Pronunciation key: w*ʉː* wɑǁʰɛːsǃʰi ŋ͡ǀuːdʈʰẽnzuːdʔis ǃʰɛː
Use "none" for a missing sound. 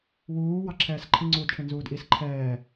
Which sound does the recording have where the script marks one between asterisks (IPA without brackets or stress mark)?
uː